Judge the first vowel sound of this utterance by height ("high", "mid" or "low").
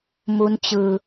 high